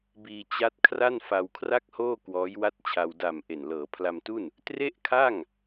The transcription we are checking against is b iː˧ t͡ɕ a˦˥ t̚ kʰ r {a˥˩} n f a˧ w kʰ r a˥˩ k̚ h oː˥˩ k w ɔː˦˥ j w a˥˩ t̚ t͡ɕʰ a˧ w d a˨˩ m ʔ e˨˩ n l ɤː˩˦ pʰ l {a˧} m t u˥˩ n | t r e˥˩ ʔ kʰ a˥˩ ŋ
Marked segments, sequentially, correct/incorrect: correct, correct

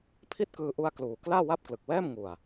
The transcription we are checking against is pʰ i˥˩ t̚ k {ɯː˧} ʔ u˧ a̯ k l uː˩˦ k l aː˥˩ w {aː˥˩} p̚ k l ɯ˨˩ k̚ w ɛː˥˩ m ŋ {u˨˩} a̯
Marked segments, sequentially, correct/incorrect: correct, incorrect, correct

